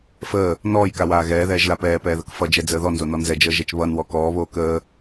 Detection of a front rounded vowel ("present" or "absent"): absent